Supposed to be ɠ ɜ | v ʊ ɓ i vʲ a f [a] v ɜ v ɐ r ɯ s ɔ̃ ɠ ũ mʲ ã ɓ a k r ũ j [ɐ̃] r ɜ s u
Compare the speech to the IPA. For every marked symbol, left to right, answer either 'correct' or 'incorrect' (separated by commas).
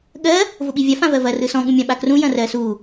incorrect, correct